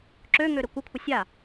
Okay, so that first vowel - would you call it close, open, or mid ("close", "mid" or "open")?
mid